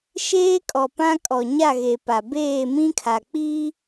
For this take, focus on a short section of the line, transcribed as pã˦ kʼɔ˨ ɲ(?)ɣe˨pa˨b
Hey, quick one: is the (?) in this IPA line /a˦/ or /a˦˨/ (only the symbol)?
a˦˨